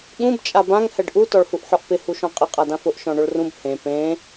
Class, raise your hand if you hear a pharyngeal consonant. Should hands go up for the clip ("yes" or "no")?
yes